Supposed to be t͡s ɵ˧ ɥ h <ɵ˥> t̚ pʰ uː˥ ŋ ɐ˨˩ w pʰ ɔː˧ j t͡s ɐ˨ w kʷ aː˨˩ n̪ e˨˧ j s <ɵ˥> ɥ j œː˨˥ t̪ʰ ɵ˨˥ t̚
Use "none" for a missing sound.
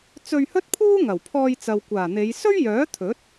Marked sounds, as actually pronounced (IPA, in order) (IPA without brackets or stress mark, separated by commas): ɵ˥, ɵ˥